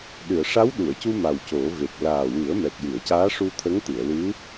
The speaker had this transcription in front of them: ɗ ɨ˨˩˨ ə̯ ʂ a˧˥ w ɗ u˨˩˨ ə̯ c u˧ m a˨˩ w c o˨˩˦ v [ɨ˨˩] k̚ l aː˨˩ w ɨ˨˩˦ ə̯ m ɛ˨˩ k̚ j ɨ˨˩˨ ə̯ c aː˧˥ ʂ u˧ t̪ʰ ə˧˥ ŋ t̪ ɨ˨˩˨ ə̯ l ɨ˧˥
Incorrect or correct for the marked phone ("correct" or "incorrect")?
incorrect